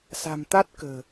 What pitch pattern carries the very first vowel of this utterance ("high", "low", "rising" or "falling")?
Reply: low